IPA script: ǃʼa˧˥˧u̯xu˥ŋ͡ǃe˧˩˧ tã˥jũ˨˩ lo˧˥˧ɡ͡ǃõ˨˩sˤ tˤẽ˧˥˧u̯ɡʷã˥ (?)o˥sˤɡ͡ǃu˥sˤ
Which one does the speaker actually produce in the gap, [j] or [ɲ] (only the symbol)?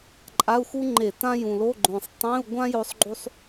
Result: j